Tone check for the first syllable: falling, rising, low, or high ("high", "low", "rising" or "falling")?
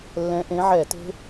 rising